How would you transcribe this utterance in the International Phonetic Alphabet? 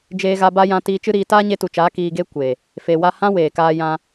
d͡ʒeː˧ɣa˧ba˦jã˧ tiː˧t͡ʃɨ˦ɾiː˧ taː˦ɲe˧tu˨t͡ʃaː˨˦ kiː˧ɡe˦ kʷe˨ | fe˨wa˧hã˦ weː˨kaː˧jã˧

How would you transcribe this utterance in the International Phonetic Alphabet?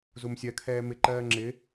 zumsʲɜkʰɛː mɪ ǃɜːŋ͡ǁɪ

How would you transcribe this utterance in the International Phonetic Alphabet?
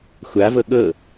xʷavɤ ɠɤ

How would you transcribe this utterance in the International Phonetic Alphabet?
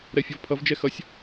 ɾɛfʲʌvpʰʌv d͡ʒɛxʌsʲ

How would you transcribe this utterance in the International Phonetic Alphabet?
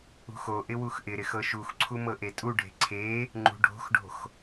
ṳxoʔɪ wuxʔɪɾɪx ɤʃuxǀʰu mɤʔetʼuɖʱe̤ ǀʰe | ŋ͡ǃṳɖʱo̤xɖo̤x

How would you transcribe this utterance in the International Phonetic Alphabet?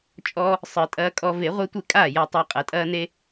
t͡ʃʼɔ˦ | sˤɨ˨˩˦tʼɐː˦kʼɔ˦ ve˨˩˦ʁʷe˦tʷe˥˩kʼaː˥˩ ja˦tˤa˦ qʼɐ˨˩˦tʼɐː˦ne˦

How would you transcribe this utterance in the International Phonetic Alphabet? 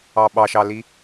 ɑɓɑʃɑli

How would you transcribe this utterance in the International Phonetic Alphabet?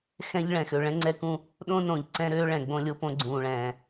xɛ̃˦ʎ ɭɛ̃˨xø˨ ɭɛ̃˦ŋ͡ǀɛ˦kũ˦ | ɗõ˦nõ˨ʎǀɛ̃˦ ɾøː˦ɭɛ̃˨ ɡ͡bõ˦lʲo˦põ˦ ɡ͡ǀũː˨ɭɛ̃ː˨

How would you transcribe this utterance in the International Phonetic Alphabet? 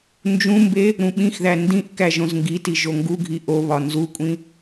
nd͡ʒũmbe | ɾũɓĩxðæ ndĩʔ kæʒõzŋɡiti ʒoŋɡuɡʱi ʔoβɒ nzukʷʼĩ

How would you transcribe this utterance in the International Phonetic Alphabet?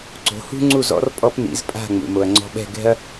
ǀo̤˩˥hṳ˥ŋ͡ǀu˥˩zɔ̰˩˥r pʼɔ˧p nḭ˩˥zpʼa̤˥˩ ŋ͡mṵ˩ mo˩ɐ̯ŋ͡ǀɔ̤˧ɓɛ̤˥˩ ɡɛ̤˥ɐ̯

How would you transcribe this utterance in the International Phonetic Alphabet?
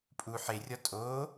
pʼu ħerʲɒ tʼo

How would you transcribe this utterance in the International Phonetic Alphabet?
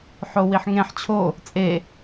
ħowiħŋẽħ t͡ɕʰo | t͡sʼe

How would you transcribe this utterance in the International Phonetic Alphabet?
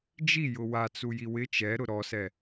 d͡ʒi jʊwa t͡sujiwɪ t͡ʃɛɾʊ ɾɔsɛ

